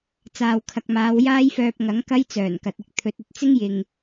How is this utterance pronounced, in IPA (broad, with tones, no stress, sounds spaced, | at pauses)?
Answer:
t͡s aː˨ w kʰ ɐ˨ k̚ m aː˨˧ w j aː˥ j f œː˧ p̚ ŋ ɐ˨˥ ŋ k ɐ˥ j t͡s œː˨˩ n k ɐ˨ t̚ ɪ˥ k̚ t̪ʰ ɵ˨˥ t̚ ɵ˧ t̚ t͡s ɪ˥ ŋ j ɪ˨ ŋ